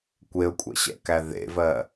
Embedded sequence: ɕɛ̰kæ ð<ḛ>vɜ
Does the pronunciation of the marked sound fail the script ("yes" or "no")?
no